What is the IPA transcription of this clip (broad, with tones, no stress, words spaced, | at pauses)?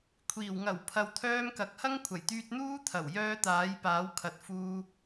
kʷʰiː˨˩w ŋɐ˨˩w pʰɐ˨wt̪ʰœː˧mkɐ˨k̚ hɐ˥ŋkʷʰɐ˨˩jt̪yː˧t̚n̪uː˥ t̪ʰɐ˨˩wjœː˧ t̪aː˨˥jpaː˨˥w kʰɐ˨˥t̚fuː˧